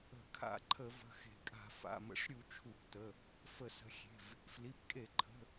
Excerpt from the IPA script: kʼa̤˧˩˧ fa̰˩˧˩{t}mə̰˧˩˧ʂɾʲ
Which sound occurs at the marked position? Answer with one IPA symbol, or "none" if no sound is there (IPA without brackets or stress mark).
none